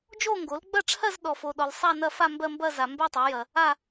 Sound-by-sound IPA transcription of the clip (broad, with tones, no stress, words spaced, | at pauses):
d͡ʒo˥˧ŋɡo˩˥lɡ͡bɐ˥˧ʈ͡ʂʰɜ˥˧z ɗɔ˨fo˨ɗɔ˨l sˤa˥˧nɐ˥˧fa˥˧ mbɜ˥˧mbɐ˥˧ za˨mbɜ˥˧tˤɜ˩˥jɐ˨ | a˥˧